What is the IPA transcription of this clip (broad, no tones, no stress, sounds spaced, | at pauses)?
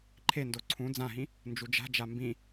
ǃʰ e n d o ǀʰ ũ d͡z ã ɦ ĩ | n d͡ʒ u d͡ʒ a̤ d͡ʒ a m b ĩ